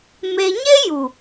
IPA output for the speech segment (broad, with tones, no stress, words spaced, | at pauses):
me˧ ɲe˦ju˨